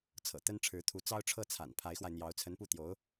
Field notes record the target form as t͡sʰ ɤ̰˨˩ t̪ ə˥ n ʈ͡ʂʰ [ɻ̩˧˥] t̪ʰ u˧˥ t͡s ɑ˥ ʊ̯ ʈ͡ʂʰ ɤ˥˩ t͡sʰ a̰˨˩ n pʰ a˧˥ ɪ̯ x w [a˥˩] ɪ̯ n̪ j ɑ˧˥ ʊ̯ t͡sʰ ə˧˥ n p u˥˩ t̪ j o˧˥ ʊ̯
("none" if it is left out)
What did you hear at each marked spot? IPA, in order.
ɻ̩˧˥, a˧

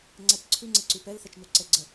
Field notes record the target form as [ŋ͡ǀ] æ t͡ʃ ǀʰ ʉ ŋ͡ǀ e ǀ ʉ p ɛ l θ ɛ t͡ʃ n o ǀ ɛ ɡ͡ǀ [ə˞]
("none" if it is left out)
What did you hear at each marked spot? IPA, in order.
ŋ͡ǀ, ə

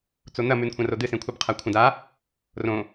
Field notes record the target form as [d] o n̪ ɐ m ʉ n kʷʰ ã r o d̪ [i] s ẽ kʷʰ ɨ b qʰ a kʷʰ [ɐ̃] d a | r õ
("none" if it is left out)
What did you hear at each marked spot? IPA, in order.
t͡s, ɨ, ɐ̃

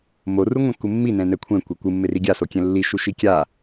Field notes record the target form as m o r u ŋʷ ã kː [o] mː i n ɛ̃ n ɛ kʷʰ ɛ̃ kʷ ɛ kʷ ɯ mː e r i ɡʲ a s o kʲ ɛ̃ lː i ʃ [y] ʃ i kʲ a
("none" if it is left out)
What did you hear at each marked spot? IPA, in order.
u, u

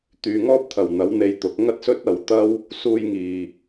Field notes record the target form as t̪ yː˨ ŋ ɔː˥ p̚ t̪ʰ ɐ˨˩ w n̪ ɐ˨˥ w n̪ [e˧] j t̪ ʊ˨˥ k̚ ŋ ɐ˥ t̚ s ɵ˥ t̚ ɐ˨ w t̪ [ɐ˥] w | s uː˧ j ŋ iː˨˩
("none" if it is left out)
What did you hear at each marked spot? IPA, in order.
e˧, ɐ˥

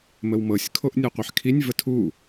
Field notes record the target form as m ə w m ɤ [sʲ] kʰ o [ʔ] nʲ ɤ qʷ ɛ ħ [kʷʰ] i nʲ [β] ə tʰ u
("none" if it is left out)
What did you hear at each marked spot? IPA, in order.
sʲ, ʔ, kʰ, v

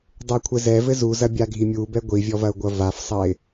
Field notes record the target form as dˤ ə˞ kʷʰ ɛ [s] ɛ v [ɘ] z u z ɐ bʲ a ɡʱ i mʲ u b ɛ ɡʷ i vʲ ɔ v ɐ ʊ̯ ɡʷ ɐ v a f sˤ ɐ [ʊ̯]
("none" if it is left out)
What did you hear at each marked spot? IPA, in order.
z, ɘ, ɪ̯

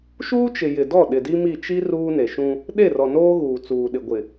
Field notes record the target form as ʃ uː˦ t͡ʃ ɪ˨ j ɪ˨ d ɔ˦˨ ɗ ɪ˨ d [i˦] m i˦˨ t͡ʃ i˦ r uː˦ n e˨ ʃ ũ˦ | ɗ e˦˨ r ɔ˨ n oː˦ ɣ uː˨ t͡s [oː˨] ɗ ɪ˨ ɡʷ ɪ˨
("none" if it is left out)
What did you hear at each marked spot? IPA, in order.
i˦, uː˨

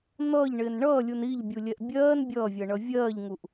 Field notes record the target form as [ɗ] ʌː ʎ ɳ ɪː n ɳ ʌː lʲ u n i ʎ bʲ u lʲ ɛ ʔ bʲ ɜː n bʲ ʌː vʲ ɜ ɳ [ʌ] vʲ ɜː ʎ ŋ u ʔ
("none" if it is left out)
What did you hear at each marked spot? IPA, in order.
n̪, ʌ

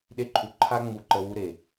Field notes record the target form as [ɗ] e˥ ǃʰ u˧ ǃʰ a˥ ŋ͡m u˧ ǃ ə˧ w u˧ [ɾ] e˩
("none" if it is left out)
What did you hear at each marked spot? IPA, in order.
ɗ, ɾ

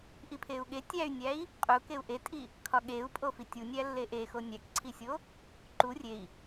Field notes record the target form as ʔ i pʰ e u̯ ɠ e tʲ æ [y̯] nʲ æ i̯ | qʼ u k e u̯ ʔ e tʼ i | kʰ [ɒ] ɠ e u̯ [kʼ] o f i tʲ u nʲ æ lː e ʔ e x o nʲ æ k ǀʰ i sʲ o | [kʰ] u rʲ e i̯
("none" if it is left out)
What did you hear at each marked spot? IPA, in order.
y̯, ɒ, pʼ, ǃ

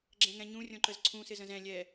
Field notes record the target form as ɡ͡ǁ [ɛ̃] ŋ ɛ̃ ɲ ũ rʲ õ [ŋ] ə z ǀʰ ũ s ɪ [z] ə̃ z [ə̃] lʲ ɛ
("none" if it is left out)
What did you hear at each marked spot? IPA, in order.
ɛ̃, ǃ, z, ɛ̃

